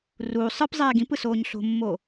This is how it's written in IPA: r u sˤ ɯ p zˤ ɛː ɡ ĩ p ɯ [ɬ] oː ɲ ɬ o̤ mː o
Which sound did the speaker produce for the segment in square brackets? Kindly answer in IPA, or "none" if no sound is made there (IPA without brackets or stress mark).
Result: s